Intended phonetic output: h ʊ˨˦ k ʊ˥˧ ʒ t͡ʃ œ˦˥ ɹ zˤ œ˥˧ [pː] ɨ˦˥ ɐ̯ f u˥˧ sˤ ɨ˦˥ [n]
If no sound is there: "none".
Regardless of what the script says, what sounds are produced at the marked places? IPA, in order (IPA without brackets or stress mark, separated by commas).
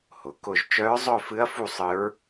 f, ɹ